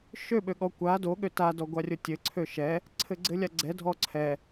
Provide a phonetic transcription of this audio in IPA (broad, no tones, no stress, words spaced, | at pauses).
ʃø ɓøɠɔ kʷa do ɠøta dɔɡʷarʲotʲɘ ǀʰøʃɛ | ǀʰɘɡ͡ǀɘlʲaɡ͡ǀɛ dʱɔǀʰɛ